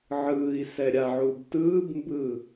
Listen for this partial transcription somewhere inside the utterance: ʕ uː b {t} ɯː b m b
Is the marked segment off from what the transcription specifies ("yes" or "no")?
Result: no